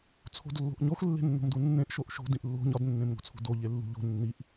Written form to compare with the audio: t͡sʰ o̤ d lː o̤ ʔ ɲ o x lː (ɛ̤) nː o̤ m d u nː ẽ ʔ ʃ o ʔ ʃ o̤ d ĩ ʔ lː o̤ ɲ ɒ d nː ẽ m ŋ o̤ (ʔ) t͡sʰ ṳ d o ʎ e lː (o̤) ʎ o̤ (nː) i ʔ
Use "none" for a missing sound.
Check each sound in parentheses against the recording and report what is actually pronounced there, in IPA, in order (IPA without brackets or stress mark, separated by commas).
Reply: e̤, none, ṳ, nː